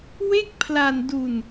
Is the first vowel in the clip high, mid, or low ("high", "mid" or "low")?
mid